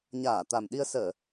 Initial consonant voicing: voiced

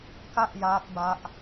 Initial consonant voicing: voiceless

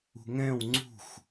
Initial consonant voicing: voiced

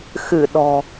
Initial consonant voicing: voiceless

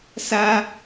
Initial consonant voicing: voiceless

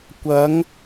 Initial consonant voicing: voiceless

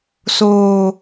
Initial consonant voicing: voiceless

